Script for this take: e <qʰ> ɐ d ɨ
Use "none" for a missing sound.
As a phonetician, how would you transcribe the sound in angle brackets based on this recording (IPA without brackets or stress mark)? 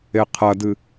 qʰ